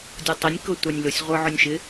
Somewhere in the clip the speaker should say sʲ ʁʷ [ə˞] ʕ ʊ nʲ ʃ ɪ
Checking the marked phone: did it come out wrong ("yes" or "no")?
no